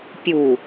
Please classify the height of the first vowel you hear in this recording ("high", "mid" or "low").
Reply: high